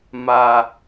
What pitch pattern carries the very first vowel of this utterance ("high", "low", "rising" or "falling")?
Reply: low